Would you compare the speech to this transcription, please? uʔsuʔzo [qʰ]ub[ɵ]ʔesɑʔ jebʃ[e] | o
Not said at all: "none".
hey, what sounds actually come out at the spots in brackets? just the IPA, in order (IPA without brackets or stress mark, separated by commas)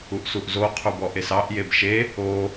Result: qʰ, ɔ, e